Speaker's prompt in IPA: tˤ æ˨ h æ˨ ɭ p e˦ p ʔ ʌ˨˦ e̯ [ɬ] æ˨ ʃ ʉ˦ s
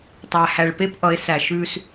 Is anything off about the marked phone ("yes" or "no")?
yes